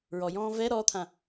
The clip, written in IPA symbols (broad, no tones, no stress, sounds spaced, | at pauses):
ɹ ɔ j ɔ̃ː v ɛ ɾ ɔ t̪ʰ ã